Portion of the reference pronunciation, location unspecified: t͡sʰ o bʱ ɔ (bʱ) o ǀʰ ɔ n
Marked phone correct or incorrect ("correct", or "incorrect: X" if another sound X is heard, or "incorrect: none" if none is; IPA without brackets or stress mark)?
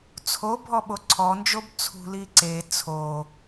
incorrect: ɓ